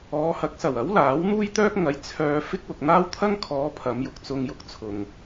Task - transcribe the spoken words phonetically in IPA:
ɔː˨˧ h ɐ˨˥ k̚ s ɐ˨˩ w ɐ˨˥ w l aː˨˥ w n̪ uː˥ j t̪ œː˥ k̚ ŋ ɐ˨˧ j t͡sʰ œː˧ f ɪ˥ k̚ w ʊ˨ k̚ n̪ aː˥ w t̪ʰ ɐ˥ ŋ kʰ ɔː˨˧ pʰ ɐ˨˧ m j ʊ˧ k̚ t͡s ʊ˧ ŋ j ʊ˧ k̚ t͡sʰ ʊ˨ ŋ

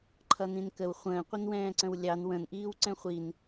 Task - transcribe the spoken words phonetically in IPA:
ǃʰ ʌ n ĩ n k ə w χʷ ə̃ː qʷ ɪ n w ɛ̃ː ǀ ə̃ w lʲ ɑ n w ə̃ n ʔ iː w ǀ ɛ̃ χʷ i n

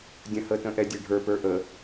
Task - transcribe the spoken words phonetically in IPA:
dʲ ə̃ h ə t ə̃ ʔ ɛ dʲ ɛ ɖʱ ə˞ p ə˞ ʔ ə

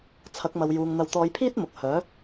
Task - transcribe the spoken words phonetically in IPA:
t͡sʰ ɐ˨˥ k̚ m ɐ˨ w j uː˨ ŋ n̪ ɐ˨˧ w t̪ ɔː˨˧ j pʰ iː˥ t̚ m ʊ˨ k̚ h œː˨˥

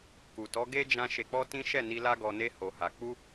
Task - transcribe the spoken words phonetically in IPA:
k u˨ t ɔ˨˦ ɡ e˦ d͡ʒ ã˧ ʃ e˧ k͡p ɔ˦ t ĩ˦ ʃ ɛ˦˨ n i˧ l a˦ ɡ ɔ˧ n e˦ h o˧ h a˧ k͡p u˦

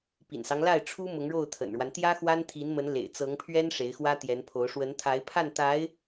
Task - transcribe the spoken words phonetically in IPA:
p ḭ˨˩ n s ɑ˦ ŋ l a˥˩ ɪ̯ ʈ͡ʂʰ u˥ m ʊ˧˥ ŋ ɻ o˥˩ ʊ̯ t̪ʰ ə̰˨˩ n ɻ w a˦ n t̪ j ä˥ x w a˥ n t̪ʰ i˧˥ n m ə˧˥ n l ḛ˨˩ ɪ̯ t͡s ɤ˧˥ ŋ pʰ ɥ ɛ˥ n ʂ e˧˥ ɪ̯ x w ä˥ t̪ j ɛ˧˥ n pʰ o˧˥ ʊ̯ ʂ w ə˧˥ n t̪ʰ a˧˥ ɪ̯ pʰ a˥˩ n t̪ a˧˥ ɪ̯

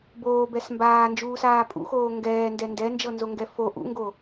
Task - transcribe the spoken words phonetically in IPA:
b oː b ɛ s m b aː n d͡ʒ uː s aː pʼ ṵ x oː ŋ ɡ ɛː n d ɛ n d ɛ n d͡ʒ ɤ n z o ŋ ɡ ɛ f o ʔ ṵ ŋ ɡ o

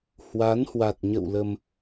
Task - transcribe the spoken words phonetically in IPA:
h w a˨˦ n h w a˨˩ t̚ ɲ ə̰˧˨ w l ə˧ m

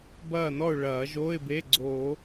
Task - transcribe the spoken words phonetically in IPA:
b ɐː˥˨ n ɔ˥˨ ʊ̯ ɭ ɐː˨˩˦ ʒ oː˧˥˧ ɪ̯ b e˧˥˧ ɡ͡ǀ oː˨˩˦

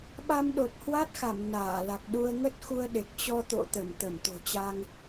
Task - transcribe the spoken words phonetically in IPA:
ɓ a˧ m ɗ o˨˩ t̚ h w a˦˥ t̚ x a˧˩ m n aː˧˩ l a˨˩ k̚ ɗ u˧ ə̯ ŋ ə˦˥ t̚ x u˧ ə̯ ɗ e˨˩ k̚ t͡ɕ ɔ˧ t̪ o̰˧˨ t̪ ə˧˩ m t̪ ə˧˩ m t̪ o̤˨˩ t͡ɕ a˧ ŋ

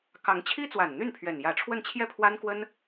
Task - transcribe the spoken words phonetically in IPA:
k ɑ˧˥ ŋ t͡ɕʰ i˥ t͡s w a˨˩ n n̪ y˥˩ n pʰ ɥ ɛ˨˩ n j ä˧˥ ʈ͡ʂʰ w ə˥˧ n t͡ɕʰ j ɛ˥˩ pʰ w a˥ n k w ə˥ n

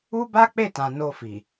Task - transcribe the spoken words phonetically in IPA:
u˦ b a˦ k͡p e˦˨ t ã˨ n o˧ f i˨

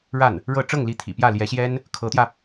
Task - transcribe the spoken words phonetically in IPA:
ɻ a˥˩ n | ɻ ɤ˥˧ ʈ͡ʂ ɤ˥˩ ŋ l i˧˥ t̪ʰ ḭ˨˩ p j ä˥˩ l j ɛ˧˥ ɕ j ɛ˥ n | kʰ ɤ˧˥ t̪ j ä˧

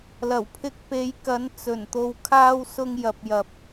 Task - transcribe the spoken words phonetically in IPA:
l ɐ˨˩ w pʰ ɪ˨˥ k̚ p e˨˧ j k ɐ˨˧ n t͡s ɵ˨˩ n t̪ o˨ w kʰ aː˧ w s ʊ˨ ŋ j ɐ˨ p̚ j ɐ˨ p̚

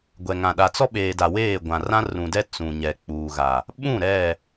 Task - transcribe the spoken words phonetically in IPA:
ɡʷ ɛ˨ ŋ ã˨ ɗ a˨ t͡s ɔ˦ ɓ eː˨ d a˨ w eː˦˨ ɡʷ ã˨ r ã˦ r ũ˨ d ɛ˦ t͡s ũ˨ ɲ ɛ˨ k͡p uː˨ ɣ a˨ | ɓ ũ˦˨ ɾ ɛ˦˨

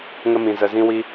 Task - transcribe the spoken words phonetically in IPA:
ŋ ə˦ m ĩ˧ z ə˧ z ĩ˦ w i˦

